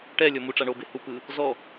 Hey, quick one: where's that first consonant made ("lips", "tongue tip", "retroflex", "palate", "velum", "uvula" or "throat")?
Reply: retroflex